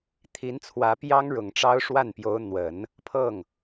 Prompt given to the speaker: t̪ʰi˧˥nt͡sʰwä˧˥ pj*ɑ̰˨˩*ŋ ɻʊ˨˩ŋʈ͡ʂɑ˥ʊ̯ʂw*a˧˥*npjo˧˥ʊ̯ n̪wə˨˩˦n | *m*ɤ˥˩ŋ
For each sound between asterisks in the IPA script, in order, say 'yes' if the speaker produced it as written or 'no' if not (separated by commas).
no, no, no